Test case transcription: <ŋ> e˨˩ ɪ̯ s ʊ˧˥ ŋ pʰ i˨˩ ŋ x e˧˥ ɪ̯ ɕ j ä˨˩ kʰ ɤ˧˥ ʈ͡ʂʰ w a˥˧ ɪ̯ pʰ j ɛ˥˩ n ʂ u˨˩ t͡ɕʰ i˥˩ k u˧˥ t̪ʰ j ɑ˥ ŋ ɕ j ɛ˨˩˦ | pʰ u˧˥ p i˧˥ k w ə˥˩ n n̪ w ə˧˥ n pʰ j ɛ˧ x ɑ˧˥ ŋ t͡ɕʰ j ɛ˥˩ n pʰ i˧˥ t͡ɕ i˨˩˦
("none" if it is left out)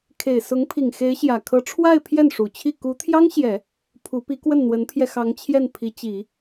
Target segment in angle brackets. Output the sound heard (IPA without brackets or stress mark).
kʰ